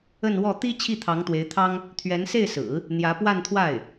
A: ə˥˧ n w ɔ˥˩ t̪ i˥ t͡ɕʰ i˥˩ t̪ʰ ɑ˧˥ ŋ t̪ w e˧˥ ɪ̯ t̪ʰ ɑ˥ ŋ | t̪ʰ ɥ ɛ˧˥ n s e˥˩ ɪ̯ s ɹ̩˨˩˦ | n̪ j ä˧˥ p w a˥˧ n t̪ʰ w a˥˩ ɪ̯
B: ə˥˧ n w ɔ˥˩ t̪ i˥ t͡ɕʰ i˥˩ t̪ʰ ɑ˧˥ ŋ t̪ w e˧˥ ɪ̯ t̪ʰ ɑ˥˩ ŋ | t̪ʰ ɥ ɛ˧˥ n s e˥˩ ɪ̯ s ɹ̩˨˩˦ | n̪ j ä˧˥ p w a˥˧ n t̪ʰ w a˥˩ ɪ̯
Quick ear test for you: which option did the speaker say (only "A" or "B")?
A